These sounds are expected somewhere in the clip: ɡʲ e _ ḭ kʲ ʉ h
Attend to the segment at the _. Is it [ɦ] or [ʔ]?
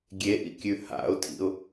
ʔ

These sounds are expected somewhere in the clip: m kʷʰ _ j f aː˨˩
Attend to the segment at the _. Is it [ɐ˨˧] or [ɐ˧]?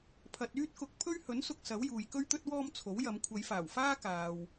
ɐ˨˧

